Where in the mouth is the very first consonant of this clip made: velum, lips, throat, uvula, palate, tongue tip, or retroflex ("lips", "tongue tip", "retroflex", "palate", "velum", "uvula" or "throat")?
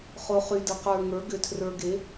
uvula